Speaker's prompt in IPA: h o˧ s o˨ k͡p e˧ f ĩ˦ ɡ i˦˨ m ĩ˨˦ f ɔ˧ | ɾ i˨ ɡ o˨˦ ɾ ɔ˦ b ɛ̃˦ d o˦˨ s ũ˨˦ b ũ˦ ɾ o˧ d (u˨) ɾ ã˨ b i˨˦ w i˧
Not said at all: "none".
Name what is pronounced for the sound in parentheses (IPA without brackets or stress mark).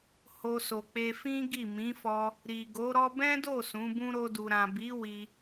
u˨